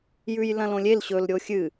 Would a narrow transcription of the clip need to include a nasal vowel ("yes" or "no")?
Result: yes